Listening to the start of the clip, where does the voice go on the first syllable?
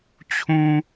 high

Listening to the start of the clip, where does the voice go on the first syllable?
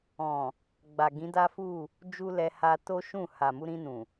low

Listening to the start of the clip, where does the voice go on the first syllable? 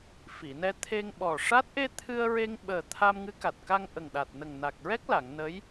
low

